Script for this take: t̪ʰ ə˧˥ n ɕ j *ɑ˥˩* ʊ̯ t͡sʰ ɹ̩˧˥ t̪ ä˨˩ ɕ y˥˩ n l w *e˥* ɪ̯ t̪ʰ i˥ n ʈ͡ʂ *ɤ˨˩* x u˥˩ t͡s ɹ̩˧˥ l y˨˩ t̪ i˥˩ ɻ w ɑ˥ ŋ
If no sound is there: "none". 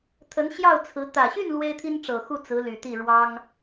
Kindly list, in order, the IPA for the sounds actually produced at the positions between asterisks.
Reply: ɑ˥˩, e˥, ɤ˨˩

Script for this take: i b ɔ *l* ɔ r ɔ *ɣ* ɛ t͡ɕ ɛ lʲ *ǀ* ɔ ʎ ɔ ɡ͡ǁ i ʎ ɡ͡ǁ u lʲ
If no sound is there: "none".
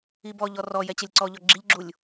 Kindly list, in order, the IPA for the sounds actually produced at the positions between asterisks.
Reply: ʎ, j, ǀ

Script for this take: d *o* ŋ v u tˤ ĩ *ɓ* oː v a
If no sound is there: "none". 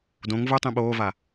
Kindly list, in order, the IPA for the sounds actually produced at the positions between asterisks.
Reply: õ, ɓ

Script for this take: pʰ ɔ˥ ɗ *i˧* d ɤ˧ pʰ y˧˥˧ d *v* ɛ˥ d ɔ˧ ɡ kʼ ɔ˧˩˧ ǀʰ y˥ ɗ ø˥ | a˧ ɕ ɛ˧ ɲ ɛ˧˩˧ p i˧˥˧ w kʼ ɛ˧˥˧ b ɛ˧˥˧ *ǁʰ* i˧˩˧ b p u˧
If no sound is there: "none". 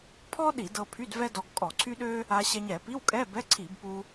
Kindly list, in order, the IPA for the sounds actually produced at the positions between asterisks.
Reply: i˧˩˧, v, ǀʰ

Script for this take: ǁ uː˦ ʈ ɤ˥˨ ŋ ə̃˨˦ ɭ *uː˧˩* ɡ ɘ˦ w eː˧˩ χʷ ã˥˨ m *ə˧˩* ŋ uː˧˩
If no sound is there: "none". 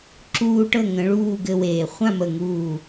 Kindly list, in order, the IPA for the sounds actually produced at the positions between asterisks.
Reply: uː˥˨, ə˧˩

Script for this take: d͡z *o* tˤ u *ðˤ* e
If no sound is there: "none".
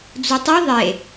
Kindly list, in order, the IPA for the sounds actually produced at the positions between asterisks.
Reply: u, ðˤ

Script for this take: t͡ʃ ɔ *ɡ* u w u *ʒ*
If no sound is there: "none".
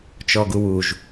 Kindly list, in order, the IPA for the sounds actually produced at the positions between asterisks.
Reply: ɡ, ʒ

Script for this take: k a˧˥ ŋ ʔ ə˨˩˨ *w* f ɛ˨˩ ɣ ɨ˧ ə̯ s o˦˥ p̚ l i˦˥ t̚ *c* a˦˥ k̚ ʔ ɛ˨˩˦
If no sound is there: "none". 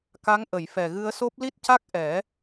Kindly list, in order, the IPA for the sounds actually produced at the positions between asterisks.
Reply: j, c

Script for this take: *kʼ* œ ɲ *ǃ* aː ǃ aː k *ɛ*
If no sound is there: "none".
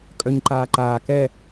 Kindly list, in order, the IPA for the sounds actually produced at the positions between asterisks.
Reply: kʼ, ǃ, ɛ

